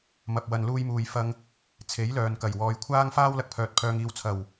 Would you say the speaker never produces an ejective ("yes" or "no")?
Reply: yes